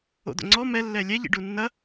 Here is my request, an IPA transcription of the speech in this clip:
o̰ d̪ o̰ ŋ͡ǀ ɔ m ɛ lː ɛ lʲ ɛ ʎ ḭ ɖ u nː ɐ

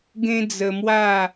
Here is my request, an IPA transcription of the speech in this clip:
ɡ ẽ˦ d͡z ə˧ m w a˥˧

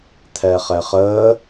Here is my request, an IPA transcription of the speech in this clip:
t̪ʰ ɛ χ ɛ χ əː

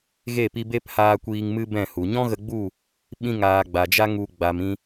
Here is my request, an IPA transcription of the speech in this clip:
ɣ e˦˨ p i˧ b e˦ p h aː˧ kʷ iː˧ ŋ m ɨ˦ b ɛ̃˦˨ h u˨ ɲ ɔ̃˦ ɣ ə˧ ɡ͡b u˦˨ | ɓ ĩ˧ ŋ aː˨ ɡ͡b a˨ d͡ʒ a˦ ŋ u˧ ɡ͡b a˨ m ĩ˧

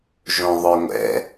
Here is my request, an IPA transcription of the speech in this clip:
ʒ õ ðˤ œ ŋʷ ɛ̰

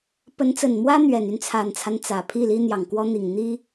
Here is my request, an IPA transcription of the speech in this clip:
p ə˧˥ n t͡s ə˨˩ n m w ä˥ n̪ ɥ ɛ˨˩ n y˥˩ n t͡sʰ a˨˩ n t͡sʰ a˦ n t͡s ä˨˩ pʰ i˥˩ l i˥ n̪ j ɑ˨˩ ŋ k w ɔ˥ n̪ i˨˩ ŋ n̪ i˥

